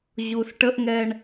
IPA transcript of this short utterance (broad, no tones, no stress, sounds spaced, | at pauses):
ʑ u s ʈ ə ʔ ŋ ɛ ɳ